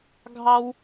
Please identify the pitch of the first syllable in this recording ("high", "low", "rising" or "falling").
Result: high